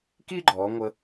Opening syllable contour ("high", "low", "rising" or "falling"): high